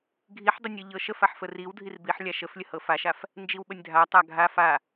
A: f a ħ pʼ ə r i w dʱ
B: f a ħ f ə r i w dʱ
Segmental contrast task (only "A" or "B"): B